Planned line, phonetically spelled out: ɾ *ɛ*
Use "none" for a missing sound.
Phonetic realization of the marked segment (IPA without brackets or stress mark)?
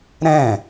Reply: ɛ̃